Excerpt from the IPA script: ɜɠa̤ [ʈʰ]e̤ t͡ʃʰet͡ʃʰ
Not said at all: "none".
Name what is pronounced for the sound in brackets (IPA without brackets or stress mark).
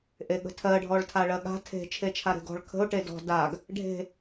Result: tʰ